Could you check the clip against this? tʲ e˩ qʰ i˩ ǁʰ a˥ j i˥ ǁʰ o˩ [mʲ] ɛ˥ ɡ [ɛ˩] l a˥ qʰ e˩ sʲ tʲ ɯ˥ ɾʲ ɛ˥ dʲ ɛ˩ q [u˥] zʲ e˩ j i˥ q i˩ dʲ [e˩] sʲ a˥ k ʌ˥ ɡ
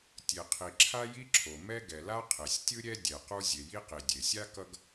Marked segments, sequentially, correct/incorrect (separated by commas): incorrect, correct, correct, correct